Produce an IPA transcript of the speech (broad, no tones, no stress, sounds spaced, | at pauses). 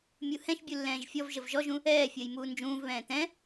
mʲ u h ɛ̃ ʃ bʲ u lː ɛ̃ː ʒ fʲ ɔ v ʒ ə v ʒ ɔ ʒ ũ | ɛː fʲ əː j m uː n d͡ʒ ũː v β ɛ̃ː t ɛ̃